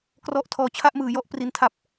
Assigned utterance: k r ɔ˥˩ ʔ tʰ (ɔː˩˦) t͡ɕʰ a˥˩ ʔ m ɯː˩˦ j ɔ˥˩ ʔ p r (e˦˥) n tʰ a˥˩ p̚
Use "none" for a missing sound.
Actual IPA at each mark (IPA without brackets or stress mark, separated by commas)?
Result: ɔː˦˥, i˦˥